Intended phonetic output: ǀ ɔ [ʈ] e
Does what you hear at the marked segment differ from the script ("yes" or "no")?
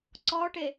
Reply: no